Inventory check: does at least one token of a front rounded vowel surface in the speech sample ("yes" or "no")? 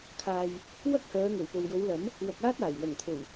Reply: yes